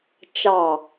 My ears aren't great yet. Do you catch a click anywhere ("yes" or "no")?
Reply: no